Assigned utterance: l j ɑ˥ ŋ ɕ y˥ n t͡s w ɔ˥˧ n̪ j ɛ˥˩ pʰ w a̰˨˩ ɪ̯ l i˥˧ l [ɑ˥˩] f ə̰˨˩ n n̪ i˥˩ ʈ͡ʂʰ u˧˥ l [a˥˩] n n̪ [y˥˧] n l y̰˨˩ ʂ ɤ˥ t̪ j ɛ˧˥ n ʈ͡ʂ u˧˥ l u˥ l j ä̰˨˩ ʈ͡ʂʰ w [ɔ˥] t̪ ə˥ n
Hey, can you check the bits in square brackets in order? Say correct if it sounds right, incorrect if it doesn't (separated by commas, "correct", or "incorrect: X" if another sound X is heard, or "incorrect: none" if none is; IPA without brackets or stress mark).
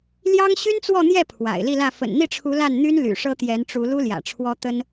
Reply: incorrect: ä˥˩, correct, incorrect: y˥, correct